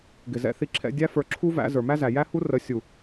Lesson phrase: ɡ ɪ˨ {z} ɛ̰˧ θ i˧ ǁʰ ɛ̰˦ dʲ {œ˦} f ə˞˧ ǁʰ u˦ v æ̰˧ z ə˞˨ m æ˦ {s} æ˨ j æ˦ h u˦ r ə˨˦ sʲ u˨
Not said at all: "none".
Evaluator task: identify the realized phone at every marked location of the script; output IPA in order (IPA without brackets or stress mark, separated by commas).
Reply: z, æ˦, z